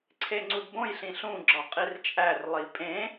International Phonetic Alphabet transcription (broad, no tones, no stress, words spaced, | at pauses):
ǀʰeŋ͡ǀudbõj ɬĩɬũ ɡ͡ǁɒqʼirt͡ʃʼær lˠipʼẽ